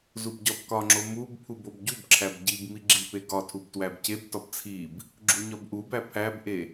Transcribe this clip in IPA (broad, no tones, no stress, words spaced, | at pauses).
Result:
zubɟɒbkɒŋ͡ǁo mubpʰub obɟubǁʰæb ɟib miɡ͡ǁipe ɡɒtʰub twæbcebtɒb t͡sʰib | ɡ͡ǁuɲɒbʔubæ pʰæbʔe